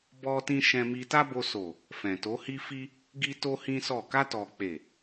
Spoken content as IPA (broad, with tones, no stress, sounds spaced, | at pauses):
b ɔ˧ t ĩ˧ ʃ ɛ̃˧ m i˧ t a˦ b o˧ s o˨ | f ɛ̃˨ t o˨˦ h i˦ f i˦ | ɡ i˦ t o˦ h ĩ˦ s ɔ˦˨ k a˧ t ɔ˨ k͡p e˨